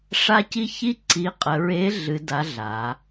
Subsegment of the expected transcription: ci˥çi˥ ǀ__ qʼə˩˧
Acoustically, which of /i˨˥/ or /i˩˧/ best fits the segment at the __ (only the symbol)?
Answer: i˨˥